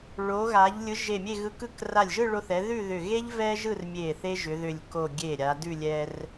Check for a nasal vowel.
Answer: absent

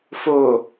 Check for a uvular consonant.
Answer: absent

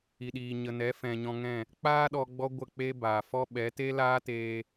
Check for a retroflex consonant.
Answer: absent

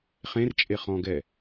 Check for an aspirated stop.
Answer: absent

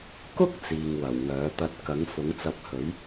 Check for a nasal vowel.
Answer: absent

